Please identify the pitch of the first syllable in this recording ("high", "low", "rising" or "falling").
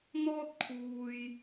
high